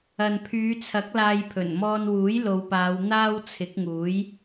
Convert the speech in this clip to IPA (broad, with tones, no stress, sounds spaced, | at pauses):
ɐ˨ n pʰ yː˨˧ t͡sʰ ɐ˨˥ k̚ l aː˧ j pʰ ɵ˨˩ n m ɔː˧ n w uː˨˥ j l o˨˧ w p aː˨˧ w n̪ aː˥ w t͡sʰ ɪ˨˥ k̚ ŋ uː˨˥ j